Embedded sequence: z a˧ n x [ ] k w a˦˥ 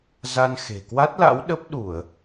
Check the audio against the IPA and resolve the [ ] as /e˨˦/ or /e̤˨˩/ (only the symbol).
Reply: e̤˨˩